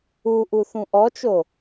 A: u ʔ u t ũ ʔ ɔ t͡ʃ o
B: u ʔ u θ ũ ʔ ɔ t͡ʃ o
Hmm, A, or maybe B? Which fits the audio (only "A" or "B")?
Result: B